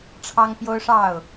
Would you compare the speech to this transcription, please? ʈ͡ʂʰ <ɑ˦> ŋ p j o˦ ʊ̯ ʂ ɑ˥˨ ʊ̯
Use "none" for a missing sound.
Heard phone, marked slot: ɑ˦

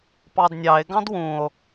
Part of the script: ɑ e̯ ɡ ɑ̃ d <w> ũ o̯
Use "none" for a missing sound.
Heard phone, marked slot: w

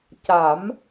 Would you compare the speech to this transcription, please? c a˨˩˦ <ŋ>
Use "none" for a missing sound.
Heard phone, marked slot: m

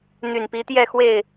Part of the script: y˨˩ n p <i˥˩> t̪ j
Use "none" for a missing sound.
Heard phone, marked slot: i˧˥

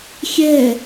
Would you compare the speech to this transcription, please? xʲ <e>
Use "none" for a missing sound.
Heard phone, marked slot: ɛ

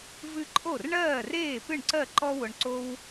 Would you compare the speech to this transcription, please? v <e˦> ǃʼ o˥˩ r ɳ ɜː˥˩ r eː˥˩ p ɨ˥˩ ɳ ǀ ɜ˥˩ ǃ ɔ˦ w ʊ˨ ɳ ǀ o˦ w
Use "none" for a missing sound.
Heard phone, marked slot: ɨ˦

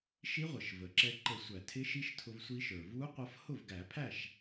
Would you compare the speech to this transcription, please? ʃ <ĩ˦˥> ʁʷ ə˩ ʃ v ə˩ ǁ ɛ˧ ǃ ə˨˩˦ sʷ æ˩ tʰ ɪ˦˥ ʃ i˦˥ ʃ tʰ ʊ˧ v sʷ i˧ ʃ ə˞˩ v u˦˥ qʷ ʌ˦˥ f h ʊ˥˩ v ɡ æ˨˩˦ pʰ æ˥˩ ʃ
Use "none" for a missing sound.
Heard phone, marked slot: i˦˥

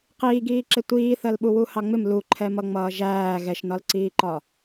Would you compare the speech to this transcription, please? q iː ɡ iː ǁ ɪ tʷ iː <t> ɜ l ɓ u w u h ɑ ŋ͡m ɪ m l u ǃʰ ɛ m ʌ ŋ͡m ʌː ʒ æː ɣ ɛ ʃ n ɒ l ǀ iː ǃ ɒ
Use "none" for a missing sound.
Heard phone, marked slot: θ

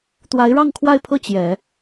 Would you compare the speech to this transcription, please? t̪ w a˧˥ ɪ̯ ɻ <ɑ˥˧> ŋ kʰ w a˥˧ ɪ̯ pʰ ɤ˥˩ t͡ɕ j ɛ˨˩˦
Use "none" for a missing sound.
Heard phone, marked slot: ɑ˥˧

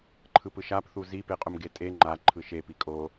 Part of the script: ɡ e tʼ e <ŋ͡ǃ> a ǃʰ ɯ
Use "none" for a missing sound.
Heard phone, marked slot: ŋ͡ǃ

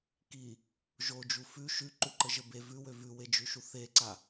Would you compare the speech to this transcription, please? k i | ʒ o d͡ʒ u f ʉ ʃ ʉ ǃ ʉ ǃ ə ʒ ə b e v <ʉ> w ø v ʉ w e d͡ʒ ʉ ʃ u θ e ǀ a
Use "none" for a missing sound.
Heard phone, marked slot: ʉ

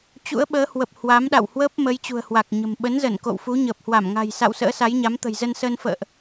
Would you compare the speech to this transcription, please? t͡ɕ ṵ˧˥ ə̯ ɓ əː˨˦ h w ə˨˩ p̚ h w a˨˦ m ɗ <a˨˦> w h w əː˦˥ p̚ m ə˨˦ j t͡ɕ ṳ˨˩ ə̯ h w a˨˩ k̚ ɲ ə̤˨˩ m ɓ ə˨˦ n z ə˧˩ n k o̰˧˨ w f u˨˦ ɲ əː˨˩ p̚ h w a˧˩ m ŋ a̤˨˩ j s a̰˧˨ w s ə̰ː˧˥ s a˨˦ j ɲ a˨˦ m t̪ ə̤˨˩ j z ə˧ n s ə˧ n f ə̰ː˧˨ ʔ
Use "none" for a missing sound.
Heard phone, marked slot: a̰˧˨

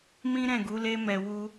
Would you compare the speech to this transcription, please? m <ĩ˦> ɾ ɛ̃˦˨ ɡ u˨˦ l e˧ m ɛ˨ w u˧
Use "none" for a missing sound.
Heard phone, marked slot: ĩ˦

